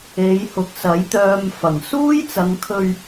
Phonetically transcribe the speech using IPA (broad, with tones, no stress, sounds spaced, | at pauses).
e˨˧ j h ʊ˨ k̚ s ɐ˨˥ j t̪ œː˧ m f ɐ˨˩ ŋ s uː˥ j t͡s ɐ˨˧ ŋ kʰ ɵ˧ ɥ